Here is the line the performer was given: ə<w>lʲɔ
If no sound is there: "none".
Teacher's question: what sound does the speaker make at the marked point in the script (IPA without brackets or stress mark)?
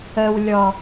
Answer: w